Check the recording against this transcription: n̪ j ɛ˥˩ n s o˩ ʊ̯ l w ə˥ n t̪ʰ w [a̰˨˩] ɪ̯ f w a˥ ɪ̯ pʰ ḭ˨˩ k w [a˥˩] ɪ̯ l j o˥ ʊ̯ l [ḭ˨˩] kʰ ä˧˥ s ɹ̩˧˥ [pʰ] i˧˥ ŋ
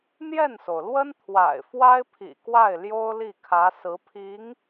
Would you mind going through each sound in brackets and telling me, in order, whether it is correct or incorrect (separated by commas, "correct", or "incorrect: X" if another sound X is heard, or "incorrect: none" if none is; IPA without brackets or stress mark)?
correct, correct, incorrect: i˥˩, correct